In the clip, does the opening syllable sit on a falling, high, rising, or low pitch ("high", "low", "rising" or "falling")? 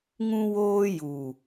high